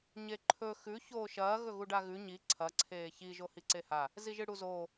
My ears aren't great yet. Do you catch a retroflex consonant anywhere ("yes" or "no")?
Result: yes